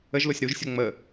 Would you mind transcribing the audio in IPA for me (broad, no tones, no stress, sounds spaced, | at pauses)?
ə ʒ l o sʲ ɾ u ʒ sʲ o ŋ͡m ə